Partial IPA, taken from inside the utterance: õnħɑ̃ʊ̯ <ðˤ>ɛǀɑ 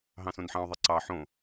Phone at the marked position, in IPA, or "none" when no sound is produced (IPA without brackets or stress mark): ðˤ